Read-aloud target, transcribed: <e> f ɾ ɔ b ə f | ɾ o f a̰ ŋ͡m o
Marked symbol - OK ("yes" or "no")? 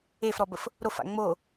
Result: yes